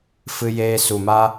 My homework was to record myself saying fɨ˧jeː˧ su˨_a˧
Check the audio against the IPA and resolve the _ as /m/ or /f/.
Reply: m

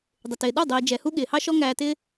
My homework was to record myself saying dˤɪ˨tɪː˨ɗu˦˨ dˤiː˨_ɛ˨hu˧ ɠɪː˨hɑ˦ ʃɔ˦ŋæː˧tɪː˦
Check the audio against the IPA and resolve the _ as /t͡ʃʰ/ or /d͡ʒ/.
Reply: d͡ʒ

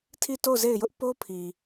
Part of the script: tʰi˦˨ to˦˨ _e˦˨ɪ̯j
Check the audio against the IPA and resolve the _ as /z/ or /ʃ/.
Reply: z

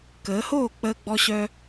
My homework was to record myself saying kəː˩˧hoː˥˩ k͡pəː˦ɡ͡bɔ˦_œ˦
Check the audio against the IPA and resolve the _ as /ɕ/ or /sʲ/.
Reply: ɕ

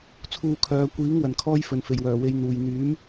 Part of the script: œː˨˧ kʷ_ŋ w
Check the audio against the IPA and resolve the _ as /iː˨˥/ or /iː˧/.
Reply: iː˨˥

